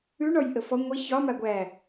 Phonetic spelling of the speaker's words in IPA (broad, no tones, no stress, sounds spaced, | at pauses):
ʉ ɳ ɔ j ʔ ə f ɔ ŋʷ e ç ɒ m a ɡʷ æ